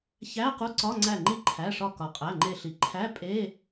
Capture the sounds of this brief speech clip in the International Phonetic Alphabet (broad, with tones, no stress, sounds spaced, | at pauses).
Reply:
ç æ˧˥˧ q u˧˥˧ ǀ ɒ˧˥˧ ŋ͡ǀ æ˧˩ ŋ͡ǃ i˧ ǃʰ æ˩˧˩ ʂ ɒ˧˩ k ɒ˩ qʼ æ˩˧˩ ŋ͡ǃ e˧˩ ɬ i˩˧ ǃʰ æ˧˥˧ pʼ e˧˥˧